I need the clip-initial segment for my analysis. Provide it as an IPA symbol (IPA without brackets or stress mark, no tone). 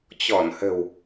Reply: t͡ɕ